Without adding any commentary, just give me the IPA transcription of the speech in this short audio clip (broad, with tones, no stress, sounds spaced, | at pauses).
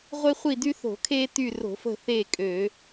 ʁʷ e˦ χʷ i˦˨ d y˦ θ o̤˧˩˧ kʰ eː˦ t y˦˨ r o̤˧˩˧ f ə̤˦˨ θ e˦˨ kʼ ø˧˩˧